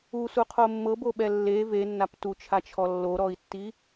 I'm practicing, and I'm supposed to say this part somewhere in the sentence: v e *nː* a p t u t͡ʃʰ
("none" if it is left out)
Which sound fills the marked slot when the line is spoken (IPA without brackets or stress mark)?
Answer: nː